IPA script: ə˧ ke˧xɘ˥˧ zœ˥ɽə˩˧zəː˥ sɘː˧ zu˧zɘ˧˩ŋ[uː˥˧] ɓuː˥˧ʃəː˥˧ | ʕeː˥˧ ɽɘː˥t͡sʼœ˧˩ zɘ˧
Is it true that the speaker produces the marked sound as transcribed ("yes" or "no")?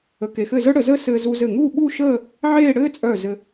yes